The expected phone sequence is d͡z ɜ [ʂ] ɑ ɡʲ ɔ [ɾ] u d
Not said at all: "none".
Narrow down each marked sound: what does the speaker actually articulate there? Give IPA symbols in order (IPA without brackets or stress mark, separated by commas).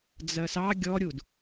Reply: s, ɾʲ